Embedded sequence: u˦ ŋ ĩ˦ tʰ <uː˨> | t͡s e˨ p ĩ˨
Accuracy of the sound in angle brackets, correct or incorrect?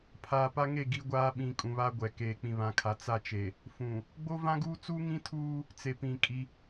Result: incorrect